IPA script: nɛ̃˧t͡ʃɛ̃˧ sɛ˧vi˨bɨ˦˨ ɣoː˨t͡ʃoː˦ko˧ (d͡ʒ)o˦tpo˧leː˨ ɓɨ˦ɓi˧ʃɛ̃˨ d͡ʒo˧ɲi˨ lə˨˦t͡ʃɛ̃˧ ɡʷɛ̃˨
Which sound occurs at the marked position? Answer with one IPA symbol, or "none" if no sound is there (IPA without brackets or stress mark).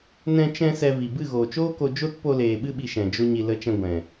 d͡ʒ